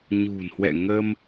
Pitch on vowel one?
low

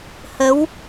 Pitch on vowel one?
rising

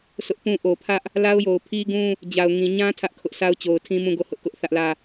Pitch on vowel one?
high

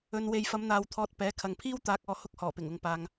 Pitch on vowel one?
low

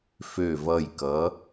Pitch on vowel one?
low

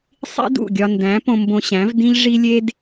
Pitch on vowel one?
high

